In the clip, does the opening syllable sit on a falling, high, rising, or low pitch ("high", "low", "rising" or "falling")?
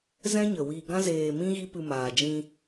high